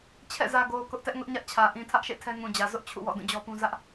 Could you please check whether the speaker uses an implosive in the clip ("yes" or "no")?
no